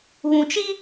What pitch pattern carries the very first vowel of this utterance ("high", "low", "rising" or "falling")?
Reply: low